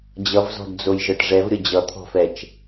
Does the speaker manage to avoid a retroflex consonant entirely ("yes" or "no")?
no